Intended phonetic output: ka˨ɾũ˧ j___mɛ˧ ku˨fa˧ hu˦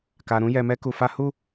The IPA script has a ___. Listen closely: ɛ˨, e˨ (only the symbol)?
ɛ˨